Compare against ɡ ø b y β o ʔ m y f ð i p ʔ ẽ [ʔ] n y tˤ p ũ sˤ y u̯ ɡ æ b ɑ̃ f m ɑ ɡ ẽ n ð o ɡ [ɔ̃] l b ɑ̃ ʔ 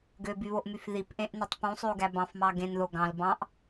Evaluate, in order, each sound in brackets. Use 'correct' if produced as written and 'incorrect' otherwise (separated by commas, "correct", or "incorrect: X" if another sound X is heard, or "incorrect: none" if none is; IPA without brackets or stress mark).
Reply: correct, incorrect: ɑ̃